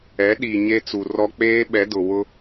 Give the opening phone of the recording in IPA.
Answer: ɛ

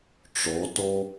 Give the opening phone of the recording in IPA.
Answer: ʈ͡ʂ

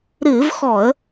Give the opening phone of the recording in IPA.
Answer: ɾ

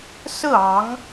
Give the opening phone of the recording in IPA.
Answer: s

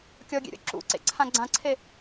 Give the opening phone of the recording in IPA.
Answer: kʲ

